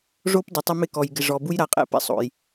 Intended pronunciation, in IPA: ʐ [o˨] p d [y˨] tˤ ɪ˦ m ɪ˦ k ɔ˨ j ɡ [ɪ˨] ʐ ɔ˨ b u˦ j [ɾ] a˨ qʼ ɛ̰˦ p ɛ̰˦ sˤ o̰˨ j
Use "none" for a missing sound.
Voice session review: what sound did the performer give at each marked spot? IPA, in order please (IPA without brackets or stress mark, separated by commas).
o˦, ɪ˨, ɪ˨, ɾ